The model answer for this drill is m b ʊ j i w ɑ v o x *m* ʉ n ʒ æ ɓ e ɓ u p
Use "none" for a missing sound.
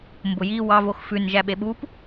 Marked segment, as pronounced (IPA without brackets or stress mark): f